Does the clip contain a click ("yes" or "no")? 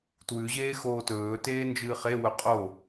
no